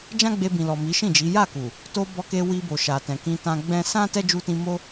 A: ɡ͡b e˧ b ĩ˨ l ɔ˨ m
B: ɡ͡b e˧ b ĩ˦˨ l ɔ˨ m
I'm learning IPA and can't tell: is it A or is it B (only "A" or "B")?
A